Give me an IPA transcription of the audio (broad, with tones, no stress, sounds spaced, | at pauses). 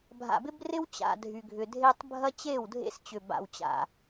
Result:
bʱ a̰˨ b ɪ˦ b r ɪ˦ w t͡ɕ a̰˨ dʱ y˨ ɡʱ ʏ˨ dʱ e˦ tˤ bʱ ɐ˦ t͡ɕ e˦˨ w dʱ ḛ˦ s t͡ɕ ʏ˨ b a̰˨ w t͡ɕ a̰˨